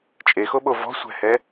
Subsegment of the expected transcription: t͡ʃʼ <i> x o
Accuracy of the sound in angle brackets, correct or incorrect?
incorrect